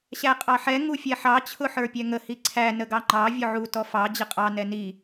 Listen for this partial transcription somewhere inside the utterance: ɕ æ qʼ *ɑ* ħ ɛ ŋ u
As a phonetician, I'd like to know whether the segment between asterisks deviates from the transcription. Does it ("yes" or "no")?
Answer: no